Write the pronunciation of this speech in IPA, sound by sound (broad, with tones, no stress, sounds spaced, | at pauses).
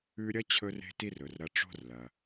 ʉ˧ ɾʲ ɐ˥ t͡ɕʰ ɵ˥ r e̤˥ t i˥ r ɵ˩ r ɾ ɐ˧ ʈ͡ʂ o̤˥ r l ɐ˩